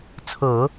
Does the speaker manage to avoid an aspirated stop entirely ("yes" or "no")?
no